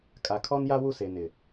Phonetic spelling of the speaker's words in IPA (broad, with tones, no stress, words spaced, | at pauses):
kʼa˨kʰɔ˦nja˦wu˦˨ se˨nɪ˨